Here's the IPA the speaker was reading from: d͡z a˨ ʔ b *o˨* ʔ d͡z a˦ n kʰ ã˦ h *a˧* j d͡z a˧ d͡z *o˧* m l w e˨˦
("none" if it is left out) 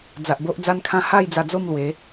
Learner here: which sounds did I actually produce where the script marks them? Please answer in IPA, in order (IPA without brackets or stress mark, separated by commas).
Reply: o˦, a˥˧, o˥˧